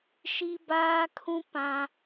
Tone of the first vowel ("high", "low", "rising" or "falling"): high